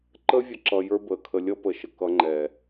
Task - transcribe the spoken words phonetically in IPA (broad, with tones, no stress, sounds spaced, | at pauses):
ǃ əː˦ vʲ ə˧ ǁ ʌ˧ j ə˞˦ b əː˨ kʰ ə˧ lʲ ʌ˦ p ə˨ ʃ ə˨ k ʌ˧ ŋ͡ǃ ɛː˨